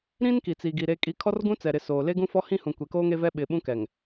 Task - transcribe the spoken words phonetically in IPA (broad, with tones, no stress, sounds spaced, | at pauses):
ɾ ĩ˦ n k i˨ t͡s i˨ ɡ i˨ ɾ e˦ kʼ i˦ kʰ ɔ˦ r ɡ ũ˦ t͡s ɛ˨ ɾ ɪ˨ s oː˨ l e˦ ɡ ũ˦ f ɔ˦ h ĩ˦ h ũ˨ kʷ e˨ k oː˦ ŋ e˦ v ɛ˦ ɓ ɪ˨ ɓ ũ˦ k ɛ˨ ŋ